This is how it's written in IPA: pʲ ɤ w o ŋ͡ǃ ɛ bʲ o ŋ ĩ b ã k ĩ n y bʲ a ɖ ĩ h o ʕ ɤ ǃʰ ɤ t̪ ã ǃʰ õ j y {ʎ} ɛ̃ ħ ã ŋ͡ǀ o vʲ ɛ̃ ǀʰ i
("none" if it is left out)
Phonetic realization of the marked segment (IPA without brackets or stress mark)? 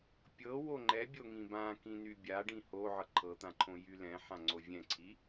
l